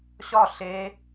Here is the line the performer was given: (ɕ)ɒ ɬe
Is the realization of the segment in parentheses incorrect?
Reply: no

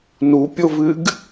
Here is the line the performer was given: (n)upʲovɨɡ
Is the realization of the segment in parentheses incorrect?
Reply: no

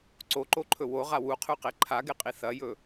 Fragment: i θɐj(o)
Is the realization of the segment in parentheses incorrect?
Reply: yes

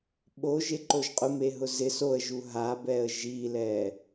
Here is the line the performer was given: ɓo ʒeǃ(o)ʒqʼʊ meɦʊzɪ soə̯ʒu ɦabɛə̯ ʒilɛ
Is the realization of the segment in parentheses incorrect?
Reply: no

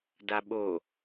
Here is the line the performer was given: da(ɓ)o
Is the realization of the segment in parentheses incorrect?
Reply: no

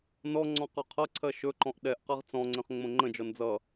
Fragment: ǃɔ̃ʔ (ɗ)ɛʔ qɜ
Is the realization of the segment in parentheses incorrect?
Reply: no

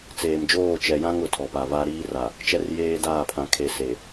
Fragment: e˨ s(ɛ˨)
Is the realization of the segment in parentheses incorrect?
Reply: yes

